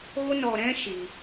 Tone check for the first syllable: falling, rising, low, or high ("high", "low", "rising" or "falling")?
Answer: high